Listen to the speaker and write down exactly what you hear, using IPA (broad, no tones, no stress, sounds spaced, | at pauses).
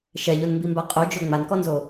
ʃ ɛ ʎ o n m b i m b a qʼ o d͡ʒ o ŋ͡m a n k ɔ n z o